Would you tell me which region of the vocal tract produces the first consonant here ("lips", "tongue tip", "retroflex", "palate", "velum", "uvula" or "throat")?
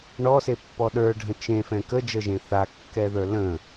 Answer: retroflex